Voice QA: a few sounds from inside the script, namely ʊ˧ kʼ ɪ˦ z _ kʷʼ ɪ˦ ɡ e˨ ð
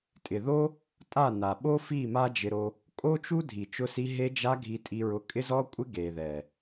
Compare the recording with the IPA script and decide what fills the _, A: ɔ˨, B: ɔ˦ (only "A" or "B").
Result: B